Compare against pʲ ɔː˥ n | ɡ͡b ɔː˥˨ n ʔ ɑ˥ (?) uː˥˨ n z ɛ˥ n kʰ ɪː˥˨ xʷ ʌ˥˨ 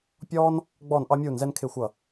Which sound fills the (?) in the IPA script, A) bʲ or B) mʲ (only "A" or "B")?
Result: B